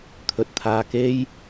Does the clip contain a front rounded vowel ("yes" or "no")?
no